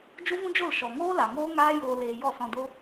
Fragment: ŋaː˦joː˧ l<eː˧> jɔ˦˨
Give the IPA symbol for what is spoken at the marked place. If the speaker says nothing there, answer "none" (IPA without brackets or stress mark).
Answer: eː˧